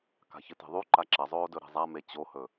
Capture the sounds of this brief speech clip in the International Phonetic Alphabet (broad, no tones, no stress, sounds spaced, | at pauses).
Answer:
k a̤ ç ɨ t e̤ ðˤ u ǃ a ǁ ɐ zˤ oː d ɵ ɾ e̤ zˤ a m e t͡ɕ o h ɵ